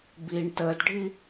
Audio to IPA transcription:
b i ɳ t əː d ɖʱ i

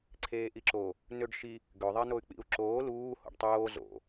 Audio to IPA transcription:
ǀʰ eː ʔ i ǁ o | n ø ɖ ʃ i | ɡ ø ðˤ e n̪ o y̯ k͡p ḭ u̯ ǁ oː l uː h o̰ ɖ tˤ oː z o̰

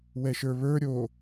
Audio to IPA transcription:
w ɛ ʃ ə˞ β ə˞ ɾʲ o

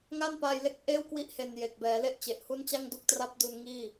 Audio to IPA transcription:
ŋ a˥˩ n p aː˧ j l e˥˩ k̚ ʔ eː˥˩ w k w i˦˥ ʔ h e˧ n j e˨˩ k̚ b ɛː˩˦ l e˥˩ ʔ t͡ɕ e˨˩ ʔ h u˥˩ n t͡ɕ a˥˩ ŋ d u˦˥ k̚ t r a˦˥ p̚ d u˧ n ŋ iː˥˩

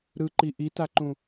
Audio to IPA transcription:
ɾ ɯ ǃ i ʔ i t a ǃ ũ

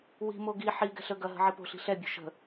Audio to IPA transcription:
w i̤ m o ɡ i ħ i ɡ ɛ̤ ɬ ə ɡ ɐ ɦ ə̤ ʕ i p o̤ ɬ i̤ ɬ ɛ bʲ o̤ ʃ ə̤

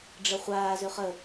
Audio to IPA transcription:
ɖ͡ʐ ə χʷ aː z ø χ ə

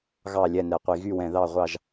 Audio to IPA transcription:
ɣ ɑ˧˩ lʲ ɛ˧˩ n ɛ˩ qʷ i˩ ɣ y˧˩ w ɛ̃˩ ð ɑ˧˩ ʁʷ ɑ˧˩ ʒ

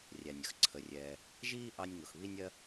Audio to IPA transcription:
rʲ æ˩ nʲ ə˦ x ǀʰ ə˩ rʲ ɛː˩ | ʒ iː˥ ʔ ɑ˦ nʲ ŋ ʊ˩ x β i˥ nʲ ɜ˥

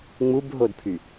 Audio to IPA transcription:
ŋ͡m u b ɦ o d pʰ y

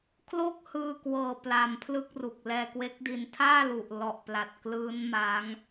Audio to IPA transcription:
kʰ l o˥˩ k̚ h ɯː˧ k w ɤː˨˩ p l a˨˩ m pʰ l ɯ˥˩ k̚ r u˨˩ k̚ l ɛː˧ k w e˦˥ k̚ d i˧ n tʰ aː˥˩ l u˨˩ ʔ l ɔ˨˩ ʔ p l a˨˩ t̚ k l ɯː˦˥ n m a˦˥ ŋ

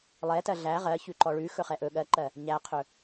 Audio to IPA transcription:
lˠ ɛ t ɜ ɮ æ ʁ ɜ ç ʉ ǃ ɔ ɭ ʉ x ɵ χ ɛ ʔ ɵ ɠ ɜ ǃ ɜ | ɲ æ qʰ ɵ

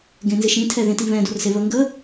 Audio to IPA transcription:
ɡ ẽ n z ɪ ʃ ĩ tʰ ɛ ð ẽ t i β ɛ̃ d o r s e β ə ŋ ɡ ə

